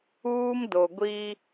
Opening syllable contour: high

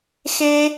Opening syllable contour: high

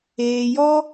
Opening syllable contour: low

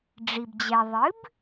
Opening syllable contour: low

